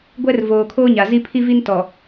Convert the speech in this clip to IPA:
ɡʷ ɛ˦ r v oː˨ kʰ oː˦ ɲ a˨ z i˦ pʰ i˦ v i˦ n t ɔ˨

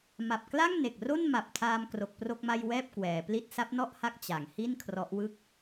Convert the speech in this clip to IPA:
m a˨˩ p̚ k l a˥˩ ŋ n e˨˩ k̚ r o˥˩ n m a˨˩ p̚ tʰ aː˧ m k r o˨˩ k̚ p r o˥˩ k̚ m a˥˩ j w ɛː˥˩ p̚ k w ɛː˩˦ p l i˥˩ t̚ s a˦˥ p̚ n ɔ˥˩ ʔ h a˦˥ k̚ t͡ɕ a˩˦ ŋ h i˥˩ n kʰ r ɔ˦˥ ʔ w ɯ˥˩ k̚

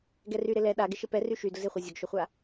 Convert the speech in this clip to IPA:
ɡ ɛ r y ɾ ɪ l ɛ ɗ a ɡ ɪ ʃ ɪ p ɛ r y ʃ y d ʊ z ɪ χʷ i zʲ ʊ ɡ ʃ ʊ χʷ a

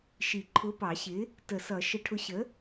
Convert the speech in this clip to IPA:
ʃ i˨˩˦ ǃʰ ʊ˨˥ p ɑ˨˩˦ ɕ ɪ˨˥ | t ə˨˩˦ s ʌ˨˩˦ ʃ ə˨˩˦ ʈʰ ʊ˨˥ ɕ ə˨˥

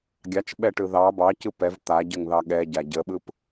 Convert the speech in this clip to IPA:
ɡʲ ɑ t͡ʃ ɓ ɛ ʈ ɯ ð ɑ b ɑ c ɯ p ɛ v t̪ a ɟ ə ŋ ð ɑ ɠ ɛ ɟ a ɟ ə ɓ ɯ p

